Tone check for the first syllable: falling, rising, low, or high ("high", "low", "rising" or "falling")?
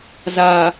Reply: low